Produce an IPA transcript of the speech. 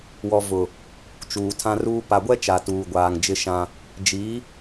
w ɔ˨ v ʊ˨ | t͡ʃ uː˨ tʰ ã˦ r uː˦ p a˨ ɡʷ ɛ˦ t͡ʃ a˨ t uː˨ ɡʷ aː˨ ŋ d͡ʒ ɪ˦ ʃ ã˦ | d͡ʒ i˨˦

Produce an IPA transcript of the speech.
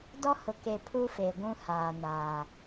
d ɔ˦ h ʊ˨ k e˨ pʰ u˦ f e˨ ɡʷ ũ˦ h aː˨ n a˨

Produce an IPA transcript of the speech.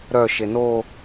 ɾ œ ʃ e n o

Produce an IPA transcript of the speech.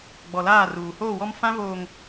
ɡ͡b ɔ˨ l aː˦˨ r uː˨ h oː˦˨ w ɔ˦ m f ã˦ v oː˨ ŋ

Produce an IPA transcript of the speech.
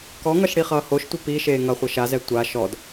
k ɔ ŋ ʌ ʃ ɽ i χ ʌː h o ʃ tʷ e p i ʃ eː ŋ ʌ χʷ ʌ ʃ a z ɛ tʷ a ʃ ɔ d

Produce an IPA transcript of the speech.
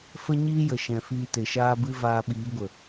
f ə˦ ɲ iː˦ j ə˨ ʃ ɛ̃˨ f iː˧ t e˨ ʃ aː˦ b ɨ˦ v aː˧ ɓ iː˨˦ ɡʷ ə˨

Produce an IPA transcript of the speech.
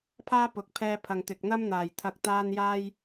pʰ aː˥ p ʊ˨˥ k̚ pʰ ɛː˧ pʰ ɐ˨ ŋ t̪ ɪ˨ k̚ n̪ ɐ˥ m n̪ aː˨˩ j t̪ʰ ɐ˨ k̚ t̪ aː˧ n j aː˧ j

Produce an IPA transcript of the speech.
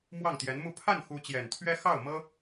m w ɑ˥˩ ŋ t̪ j ɛ˧˥ n m u˥˧ pʰ a˥˩ n x u˧˥ t͡ɕ j ɛ˨˩ n t̪ʰ ɥ ɛ˥ x ɑ˥˩ ʊ̯ m ɤ˥

